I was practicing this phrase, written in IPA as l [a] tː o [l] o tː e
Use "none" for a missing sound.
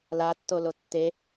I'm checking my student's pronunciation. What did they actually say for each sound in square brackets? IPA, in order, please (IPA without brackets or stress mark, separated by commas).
a, l